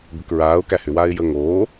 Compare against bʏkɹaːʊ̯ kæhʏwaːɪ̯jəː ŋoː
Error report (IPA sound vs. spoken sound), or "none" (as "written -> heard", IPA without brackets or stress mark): none